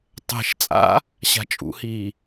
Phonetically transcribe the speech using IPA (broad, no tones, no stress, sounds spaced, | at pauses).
tˤ ɛ̤ ʃ t͡sʼ a̰ | ɕ a̤ t͡ʃʼ ṵ h iː